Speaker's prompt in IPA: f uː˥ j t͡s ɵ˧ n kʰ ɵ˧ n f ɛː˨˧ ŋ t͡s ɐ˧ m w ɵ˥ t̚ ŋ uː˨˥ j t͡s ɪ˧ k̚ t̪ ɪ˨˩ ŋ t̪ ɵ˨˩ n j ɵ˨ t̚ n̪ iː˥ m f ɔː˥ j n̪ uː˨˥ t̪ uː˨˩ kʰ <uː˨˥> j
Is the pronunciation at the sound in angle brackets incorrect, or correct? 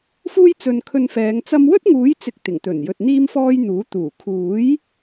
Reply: correct